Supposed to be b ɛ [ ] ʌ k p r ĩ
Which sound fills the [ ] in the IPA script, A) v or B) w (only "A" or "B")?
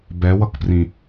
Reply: B